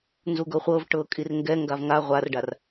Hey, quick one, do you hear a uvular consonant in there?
yes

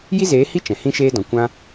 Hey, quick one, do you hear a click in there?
no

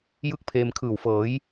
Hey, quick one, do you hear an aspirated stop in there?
yes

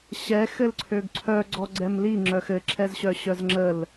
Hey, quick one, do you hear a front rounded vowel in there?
yes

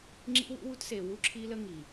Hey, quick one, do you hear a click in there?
yes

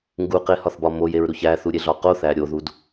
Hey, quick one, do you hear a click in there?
no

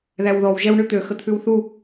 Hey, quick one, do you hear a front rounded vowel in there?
yes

